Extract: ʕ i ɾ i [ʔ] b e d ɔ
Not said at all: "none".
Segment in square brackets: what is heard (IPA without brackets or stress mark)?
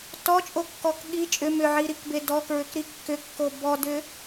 k